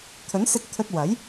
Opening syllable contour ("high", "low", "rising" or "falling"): rising